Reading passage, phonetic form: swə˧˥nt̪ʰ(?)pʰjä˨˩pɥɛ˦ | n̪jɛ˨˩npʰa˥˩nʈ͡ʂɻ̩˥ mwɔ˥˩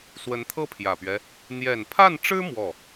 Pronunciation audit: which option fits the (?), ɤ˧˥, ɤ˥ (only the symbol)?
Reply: ɤ˥